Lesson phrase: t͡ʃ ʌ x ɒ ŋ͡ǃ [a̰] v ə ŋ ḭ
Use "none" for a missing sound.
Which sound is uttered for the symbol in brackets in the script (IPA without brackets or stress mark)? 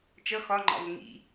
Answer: ɑ̰